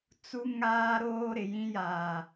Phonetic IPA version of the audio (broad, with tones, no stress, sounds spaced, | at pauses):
t͡s u˦ ŋ aː˦ ɾ oː˦ ɾ ɪ˨ j ĩ˦ j aː˨